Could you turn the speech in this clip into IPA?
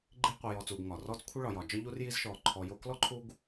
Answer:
ɡ͡ǃi˦qʷə˨jɔ˨ t͡suː˨ɡŋɒː˩rɔː˥t͡s kʷʰə˦ ɭɒ˩jɒː˩ d͡ʒɒ˦ʎu˦r ji˥zʃɔː˨ ǃʰɔ˨jo˦ klɔ˥ǃʰuː˦ɡ

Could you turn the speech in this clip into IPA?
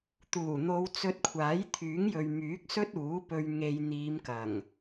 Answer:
t̪uː˨˩n̪o˨˧w t͡sɵ˧t̚kʷʰaː˨˥j t̪ʰyː˨˥ŋjɵ˨ɥ myː˨˥k̚sɵ˥t̚uː˨˥pɵ˧ɥ ŋe˧j n̪iː˨˧mkɐ˨˩ŋ

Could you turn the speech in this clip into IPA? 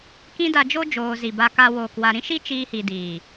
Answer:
kĩ˦da˧d͡ʒo˦ d͡ʒoː˧zi˨ ba˨ka˨woː˨kwa˨ ɾĩ˦ʃi˦t͡ʃiː˧ hi˨diː˨

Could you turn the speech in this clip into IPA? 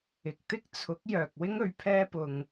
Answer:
ɪ˨k̚t̪ɪ˥k̚t͡sʰʊ˨˥k̚ jœː˨k̚wɪ˥ŋ ɵ˧ɥ pʰɛː˥pʊ˧ŋ

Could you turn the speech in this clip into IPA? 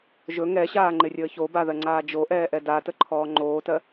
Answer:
ʒɵ ŋɛɕaːŋ͡ǃɪrʲəː çobaðɜŋ͡ǀaː d͡ʒoʔɛːʔɛ datəǃʰɔː ŋ͡ǃoːtɜ

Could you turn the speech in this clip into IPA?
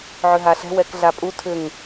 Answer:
ʕʏɦaɬɛ̤ wɛkɮapʼu tʰʏŋ

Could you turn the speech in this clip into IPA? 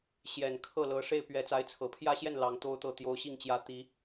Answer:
ɕjɛ˨˩n kʰɤ˥˩lɤ˧˥ ʂe˥˩ɪ̯pɥɛ˧˥ t͡sa˧˥ɪ̯t͡sʰɤ˨˩pʰjä˥ɕjɛ˥˩n lɑ˧˥ŋ t̪o˥ʊ̯t̪ɤ˥˩ t̪jo˧˥ʊ̯ɕi˥˩ŋt͡ɕjä˧˥ t̪i˧˥

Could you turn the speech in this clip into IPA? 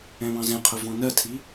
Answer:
ɛ̃βɑ̃zɛ̃qʰʊ vɔ̃nɜtʰi

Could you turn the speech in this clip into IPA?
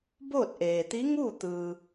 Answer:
boː˥˨t̚ʔeː˩ t̪i˧˥ ŋuː˥˨ t̪ɯː˩

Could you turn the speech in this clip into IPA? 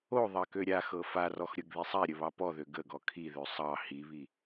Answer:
o ðˤɑkøɾʲaxɤ farɔx ɾʲɤɡðisˤaɾʲə βɑpɔðø ɡəɡɔ kʰiðø sˤɑ hiβi

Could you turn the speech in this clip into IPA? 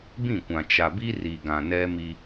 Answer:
bĩ˦˨kʷã˨ t͡ʃa˨bi˦ri˨ ɡã˨nɛ˦mi˦

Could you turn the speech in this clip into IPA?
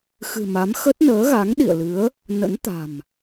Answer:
xɨ̤˨˩ma˨˦m xə˦˥t̚nəː˨˦ɣa˨˦ŋ ɗḭ˧˨ə̯lɨ˨˦ə̯ | nə̰˧˥nt̪a̤˨˩m

